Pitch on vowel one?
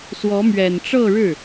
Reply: rising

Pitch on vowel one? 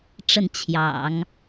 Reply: falling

